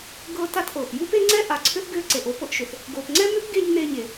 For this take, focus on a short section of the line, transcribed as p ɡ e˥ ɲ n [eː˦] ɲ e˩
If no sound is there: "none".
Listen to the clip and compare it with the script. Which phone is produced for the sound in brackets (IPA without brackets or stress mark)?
eː˦